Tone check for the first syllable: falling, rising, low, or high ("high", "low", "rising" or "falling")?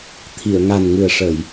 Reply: low